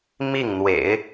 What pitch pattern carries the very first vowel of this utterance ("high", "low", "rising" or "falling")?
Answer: falling